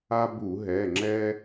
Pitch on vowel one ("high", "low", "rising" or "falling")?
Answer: high